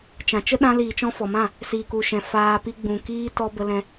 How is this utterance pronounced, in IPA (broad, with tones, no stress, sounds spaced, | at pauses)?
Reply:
t͡ʃ ã˨ t͡ʃ ə˦ ɗ ã˧ l iː˨ t͡ʃ ɔ̃˧ f ɔ˨ m ã˦˨ | s iː˨ k u˨ ʃ ɛ̃˨ f aː˧ p i˧ ɡ͡b ũ˨ k iː˦ t ɔ˦ b ə˦ l ɛ̃˦